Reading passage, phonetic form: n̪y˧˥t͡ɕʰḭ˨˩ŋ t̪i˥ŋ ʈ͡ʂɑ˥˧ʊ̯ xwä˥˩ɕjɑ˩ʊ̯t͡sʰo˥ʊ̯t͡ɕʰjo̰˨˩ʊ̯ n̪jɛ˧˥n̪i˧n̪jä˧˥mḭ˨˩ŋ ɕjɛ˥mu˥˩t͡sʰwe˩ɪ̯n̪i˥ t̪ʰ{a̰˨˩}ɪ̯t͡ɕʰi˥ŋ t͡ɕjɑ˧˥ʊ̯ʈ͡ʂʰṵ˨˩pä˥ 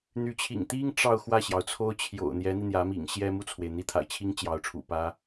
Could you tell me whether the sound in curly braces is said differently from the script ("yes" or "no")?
no